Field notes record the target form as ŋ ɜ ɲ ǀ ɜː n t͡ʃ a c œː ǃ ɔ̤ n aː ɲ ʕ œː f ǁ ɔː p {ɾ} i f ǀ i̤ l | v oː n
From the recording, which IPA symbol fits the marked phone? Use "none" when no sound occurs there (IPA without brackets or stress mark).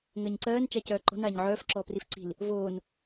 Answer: r